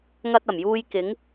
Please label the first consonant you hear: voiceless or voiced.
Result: voiced